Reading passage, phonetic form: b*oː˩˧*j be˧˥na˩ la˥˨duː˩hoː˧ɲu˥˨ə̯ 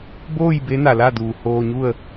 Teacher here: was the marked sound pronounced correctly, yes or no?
no